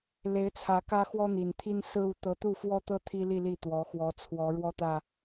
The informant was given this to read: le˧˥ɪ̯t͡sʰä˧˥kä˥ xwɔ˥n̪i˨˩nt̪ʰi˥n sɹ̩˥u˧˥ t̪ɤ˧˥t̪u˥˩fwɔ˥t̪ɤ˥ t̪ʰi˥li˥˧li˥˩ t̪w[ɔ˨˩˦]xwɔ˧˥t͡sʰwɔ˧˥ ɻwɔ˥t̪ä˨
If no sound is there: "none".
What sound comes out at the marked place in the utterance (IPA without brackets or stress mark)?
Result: ɔ˧˥